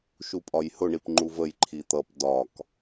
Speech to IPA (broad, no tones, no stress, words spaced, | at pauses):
ʃupʼɒjhʊɳip ŋ͡ǃuvəj ǃʰit̪ʌp dɒk